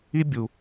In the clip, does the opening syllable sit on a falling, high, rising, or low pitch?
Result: high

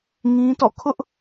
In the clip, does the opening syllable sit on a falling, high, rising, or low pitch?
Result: high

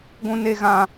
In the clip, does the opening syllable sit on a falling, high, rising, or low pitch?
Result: high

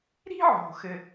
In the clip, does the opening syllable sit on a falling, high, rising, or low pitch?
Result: high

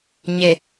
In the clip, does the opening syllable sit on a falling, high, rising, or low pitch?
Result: low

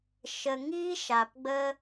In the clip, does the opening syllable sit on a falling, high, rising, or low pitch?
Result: low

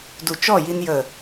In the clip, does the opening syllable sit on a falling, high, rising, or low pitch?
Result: low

